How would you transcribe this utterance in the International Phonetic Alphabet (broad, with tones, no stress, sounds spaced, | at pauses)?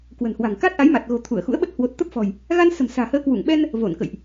k w ə̤˨˩ n h w a̤˨˩ ŋ k a˦˥ t̚ ʔ a˨˦ j m a˨˩ t̚ ɣ o̤˨˩ t̪ʰ u˧˩ ə̯ x ṵ˧˥ ə̯ ɓ ə˦˥ t̚ h w o˨˩ t̚ t̪ ə˦˥ p̚ f ɔ̤˨˩ j | ɣ a˧ n s ə̤˨˩ m s a̤ː˨˩ h əː˨˦ k w u˧˩ ŋ ɓ ɛ˧ n | v o˧˩ n k ə̰˧˨ j ʔ